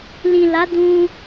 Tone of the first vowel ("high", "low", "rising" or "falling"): low